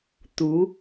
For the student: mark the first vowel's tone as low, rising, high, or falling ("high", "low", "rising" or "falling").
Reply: rising